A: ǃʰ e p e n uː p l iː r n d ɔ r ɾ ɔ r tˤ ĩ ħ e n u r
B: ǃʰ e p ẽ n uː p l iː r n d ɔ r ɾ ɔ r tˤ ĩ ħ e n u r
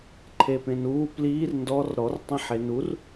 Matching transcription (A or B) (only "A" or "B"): B